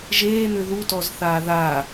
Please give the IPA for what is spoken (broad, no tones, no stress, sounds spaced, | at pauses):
ʒ eː n̪ ʏ ð u t ɔ z θ aː ð a